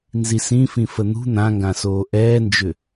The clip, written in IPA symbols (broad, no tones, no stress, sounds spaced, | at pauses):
n z i s ĩ f ĩ f ə n̪ ṳ n̪ ã ŋ ɡ ã s oː ʔ ɛː n d͡ʒ ʏ